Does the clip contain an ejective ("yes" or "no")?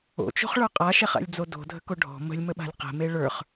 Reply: yes